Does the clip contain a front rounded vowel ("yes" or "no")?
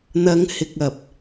no